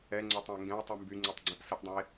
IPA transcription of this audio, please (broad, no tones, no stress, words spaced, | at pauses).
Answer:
ɛŋ͡ǀotˤə̃e̯ ŋɡɛ̃o̯tˤy mbyŋ͡ǀytˤɡ͡ǀɛ̃ʔ səʔdˤɛ̃e̯